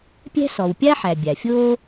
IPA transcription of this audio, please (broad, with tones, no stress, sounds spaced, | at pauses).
pʲ æ̤˥ s ɔ˩ w pʲ a˥ ħ æ˩ bʲ a˩ fʲ oː˥